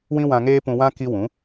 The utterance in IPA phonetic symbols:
w ĩ˦ w ã˧ ŋ eː˦ p ũ˧ w ã˦ k i˦ w ũ˨˦

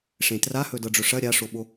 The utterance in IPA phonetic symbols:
ʂ ẽ t r a h ɵ d ɤ ɖ͡ʐ ɵ ʂ ɐ ɾʲ a ʂ o ɓ o

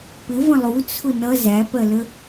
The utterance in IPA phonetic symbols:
p ɪ v ə̃ lˠ u t͡sʰ ʊ n ʌ z æ p ɜ l ə

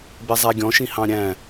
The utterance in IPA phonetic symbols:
b ɛ zˤ æ ɡʲ ɔ̃ ʃ ĩ h ɑ̃ ɾʲ æ̃

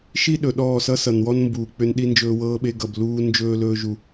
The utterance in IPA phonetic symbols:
ʃ i˦ ɗ ɵ˨ ɗ ɔː˦˨ s ʌ˦ s ʌ˨ n w ɔ˦ n m b uː˨ k͡p ʏ˦ n ɗ i˦ n d͡ʒ ɵː˦ w ɤː˦ ɓ e˦ ɡ ʌ˨ b l uː˦ n d͡ʒ ɵː˦ l ɵː˦ ʒ u˦

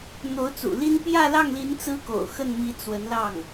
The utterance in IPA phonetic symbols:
n̪ o˧˥ ʊ̯ t͡s ṵ˨˩ l i˥ n p j ä˥˧ l ɑ˥˩ ŋ l i˧˥ n t͡s ɹ̩˥ k o̰˨˩ ʊ̯ x ə˥˩ n m i˧˥ t͡s w ə˧˥ n l ɑ˥˩ ŋ

